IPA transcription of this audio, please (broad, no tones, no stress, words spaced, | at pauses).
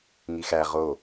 ŋixæ ʁo